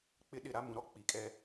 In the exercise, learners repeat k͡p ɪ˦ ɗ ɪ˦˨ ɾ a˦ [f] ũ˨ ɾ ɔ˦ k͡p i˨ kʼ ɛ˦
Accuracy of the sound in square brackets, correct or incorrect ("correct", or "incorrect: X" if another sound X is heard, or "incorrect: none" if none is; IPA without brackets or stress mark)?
incorrect: m